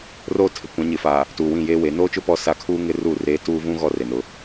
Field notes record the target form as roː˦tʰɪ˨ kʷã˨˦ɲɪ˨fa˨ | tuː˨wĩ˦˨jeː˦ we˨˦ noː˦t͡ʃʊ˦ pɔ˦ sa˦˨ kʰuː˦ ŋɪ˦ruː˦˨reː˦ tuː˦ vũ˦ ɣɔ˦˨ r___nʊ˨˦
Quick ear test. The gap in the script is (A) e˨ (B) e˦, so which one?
A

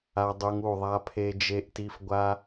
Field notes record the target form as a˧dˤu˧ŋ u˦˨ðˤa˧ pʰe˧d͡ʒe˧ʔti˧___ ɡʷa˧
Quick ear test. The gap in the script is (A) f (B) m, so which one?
A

